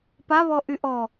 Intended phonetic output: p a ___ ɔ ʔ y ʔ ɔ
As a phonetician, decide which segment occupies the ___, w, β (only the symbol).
β